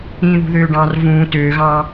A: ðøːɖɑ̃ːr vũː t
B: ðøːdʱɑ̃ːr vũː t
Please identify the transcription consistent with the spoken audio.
A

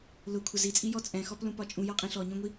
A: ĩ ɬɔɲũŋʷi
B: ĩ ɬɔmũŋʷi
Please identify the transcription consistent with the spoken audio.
A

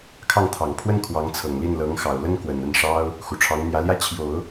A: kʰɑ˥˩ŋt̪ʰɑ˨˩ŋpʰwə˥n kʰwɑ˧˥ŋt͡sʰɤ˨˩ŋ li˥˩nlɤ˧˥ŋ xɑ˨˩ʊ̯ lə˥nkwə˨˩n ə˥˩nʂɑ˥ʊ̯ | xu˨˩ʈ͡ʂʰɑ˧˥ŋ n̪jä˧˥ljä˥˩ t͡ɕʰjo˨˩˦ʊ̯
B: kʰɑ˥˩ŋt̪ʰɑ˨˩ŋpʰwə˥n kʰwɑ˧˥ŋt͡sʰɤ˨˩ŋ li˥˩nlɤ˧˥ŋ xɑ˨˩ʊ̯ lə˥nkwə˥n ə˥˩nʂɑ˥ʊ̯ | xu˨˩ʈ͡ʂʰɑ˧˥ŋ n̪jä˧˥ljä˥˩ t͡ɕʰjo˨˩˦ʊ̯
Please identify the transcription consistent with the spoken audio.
A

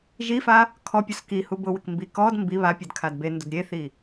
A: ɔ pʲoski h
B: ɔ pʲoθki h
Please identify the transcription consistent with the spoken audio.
A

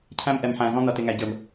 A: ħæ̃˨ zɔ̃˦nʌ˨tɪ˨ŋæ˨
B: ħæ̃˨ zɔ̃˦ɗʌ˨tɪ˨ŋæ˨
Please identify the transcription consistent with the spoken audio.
A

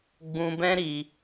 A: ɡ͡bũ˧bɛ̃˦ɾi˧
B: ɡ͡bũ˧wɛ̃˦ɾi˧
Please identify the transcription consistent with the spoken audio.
A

